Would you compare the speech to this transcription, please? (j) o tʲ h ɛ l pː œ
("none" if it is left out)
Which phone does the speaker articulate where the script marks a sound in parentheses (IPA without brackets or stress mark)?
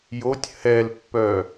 j